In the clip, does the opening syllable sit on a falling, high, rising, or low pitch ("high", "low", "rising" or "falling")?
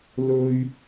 high